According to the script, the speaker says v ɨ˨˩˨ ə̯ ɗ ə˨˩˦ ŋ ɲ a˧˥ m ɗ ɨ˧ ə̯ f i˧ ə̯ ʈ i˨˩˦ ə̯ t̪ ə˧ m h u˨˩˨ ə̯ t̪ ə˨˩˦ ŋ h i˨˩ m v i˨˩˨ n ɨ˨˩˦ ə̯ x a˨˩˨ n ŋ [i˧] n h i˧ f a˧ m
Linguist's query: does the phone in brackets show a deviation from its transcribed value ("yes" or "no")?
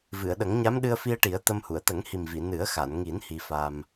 yes